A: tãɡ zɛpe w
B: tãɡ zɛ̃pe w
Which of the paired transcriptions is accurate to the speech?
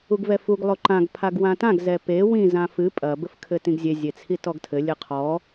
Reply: A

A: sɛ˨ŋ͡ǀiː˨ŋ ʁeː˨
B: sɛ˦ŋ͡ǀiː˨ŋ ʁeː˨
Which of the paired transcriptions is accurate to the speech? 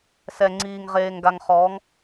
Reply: A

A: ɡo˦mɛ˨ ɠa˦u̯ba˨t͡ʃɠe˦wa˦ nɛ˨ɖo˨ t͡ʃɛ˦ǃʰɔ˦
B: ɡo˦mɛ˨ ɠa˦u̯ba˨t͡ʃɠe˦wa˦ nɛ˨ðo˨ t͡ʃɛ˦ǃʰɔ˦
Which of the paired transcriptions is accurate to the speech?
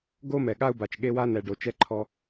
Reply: A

